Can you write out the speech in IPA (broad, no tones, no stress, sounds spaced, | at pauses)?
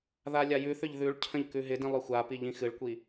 ð a lʲ a j ʉ θ ʏ ʎ ð ʉ ɭ cʰ ə̃ ʎ k ʉ ɦ ɪ d ĩ lˠ ʏ xʷ a p i ʎ ĩ x ɨ ɭ kʷ i